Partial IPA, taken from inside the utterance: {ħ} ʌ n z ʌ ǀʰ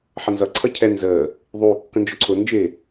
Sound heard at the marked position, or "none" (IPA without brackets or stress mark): ħ